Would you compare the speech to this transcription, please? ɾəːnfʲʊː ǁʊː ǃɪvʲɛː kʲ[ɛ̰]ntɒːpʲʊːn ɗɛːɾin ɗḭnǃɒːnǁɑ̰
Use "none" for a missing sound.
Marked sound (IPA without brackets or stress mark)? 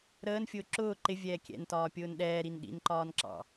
ɛ̰